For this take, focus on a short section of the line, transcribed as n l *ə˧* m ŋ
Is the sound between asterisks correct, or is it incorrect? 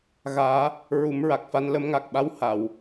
correct